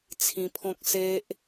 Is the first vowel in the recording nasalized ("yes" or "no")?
yes